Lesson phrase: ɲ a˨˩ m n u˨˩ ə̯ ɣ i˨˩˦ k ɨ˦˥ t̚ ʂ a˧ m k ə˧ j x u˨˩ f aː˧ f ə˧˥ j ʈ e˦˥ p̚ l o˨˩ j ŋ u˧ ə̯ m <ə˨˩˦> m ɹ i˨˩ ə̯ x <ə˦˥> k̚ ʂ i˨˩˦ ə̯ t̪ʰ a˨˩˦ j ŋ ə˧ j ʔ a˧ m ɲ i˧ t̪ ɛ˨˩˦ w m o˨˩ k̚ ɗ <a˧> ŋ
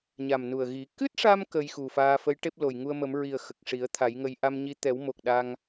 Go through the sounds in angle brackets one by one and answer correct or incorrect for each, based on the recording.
correct, incorrect, correct

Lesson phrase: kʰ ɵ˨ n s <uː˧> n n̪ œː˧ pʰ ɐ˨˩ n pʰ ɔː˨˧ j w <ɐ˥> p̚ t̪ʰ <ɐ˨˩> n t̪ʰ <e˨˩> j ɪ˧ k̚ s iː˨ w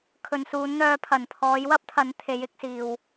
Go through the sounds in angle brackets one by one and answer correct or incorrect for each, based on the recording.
incorrect, correct, incorrect, incorrect

